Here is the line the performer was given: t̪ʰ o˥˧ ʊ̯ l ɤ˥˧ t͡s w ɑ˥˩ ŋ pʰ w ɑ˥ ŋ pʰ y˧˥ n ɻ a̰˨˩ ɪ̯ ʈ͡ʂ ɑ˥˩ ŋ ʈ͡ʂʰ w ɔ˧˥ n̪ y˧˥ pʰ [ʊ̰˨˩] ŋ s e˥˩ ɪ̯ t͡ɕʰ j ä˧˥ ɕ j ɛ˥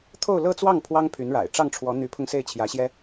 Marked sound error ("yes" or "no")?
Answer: yes